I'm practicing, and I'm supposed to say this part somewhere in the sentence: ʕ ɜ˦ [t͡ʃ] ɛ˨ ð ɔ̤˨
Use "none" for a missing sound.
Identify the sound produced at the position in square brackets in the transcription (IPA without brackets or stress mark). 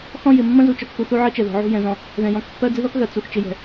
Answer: t͡ʃ